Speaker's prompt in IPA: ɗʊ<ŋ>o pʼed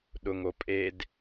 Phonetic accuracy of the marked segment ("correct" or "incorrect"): correct